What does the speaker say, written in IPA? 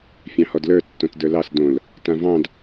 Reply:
fʲ ɑ̃ h ɔ d l ə˞ tː õ t d ə˞ l ɑ s d õ l | t ã v ɑ̃ d

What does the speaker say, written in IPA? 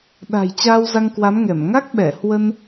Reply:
ɗ a̤˨˩ j t͡ɕ aː˧ w z a˧ ŋ k w a˨˦ m ŋ ɛ˧˩ m ŋ a˦˥ k̚ ɓ ɛ˧˩ h w ə˧ n

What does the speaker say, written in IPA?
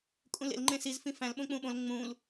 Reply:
kʼ ũ l ḛ l ŋ͡ǃ ẽ s i z f ĩ f æ̃ l ɓ õ k͡p ũ ɓ õ l ŋ͡m ũ l

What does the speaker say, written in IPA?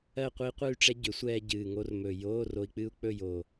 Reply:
ɜ˥˧ qʷ i˦˥ qʷ ɨ˥˧ y̯ ʈ͡ʂ ɛ˦˥ ɟ ʏ˩˥ sʷ ɛː˧ ɟ ɨː˨˩ ŋ o˧ r m ɵ˨˩ j oː˧˥˧ r o˧ i̯ k͡p ɨ˦˥ u̯ k͡p ɵ˥˧ j o˨˩

